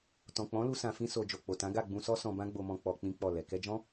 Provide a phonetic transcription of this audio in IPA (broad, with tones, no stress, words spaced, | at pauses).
tɔ̃˨k͡pɔ̃˨˦ lu˦sã˧fĩ˦ so˧ d͡ʒo˨k͡po˨tã˨˦ ɡa˦˨ɡ͡bũ˧sɔ˦sɔ̃˧ bã˦ɡ͡bo˧mɔ̃˧ k͡pɔ˧ k͡pĩ˦k͡pɔ˦˨lɛ˨ kɛ˧d͡ʒɔ̃˦